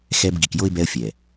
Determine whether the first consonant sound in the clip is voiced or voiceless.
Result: voiceless